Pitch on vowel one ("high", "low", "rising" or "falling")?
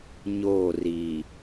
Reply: falling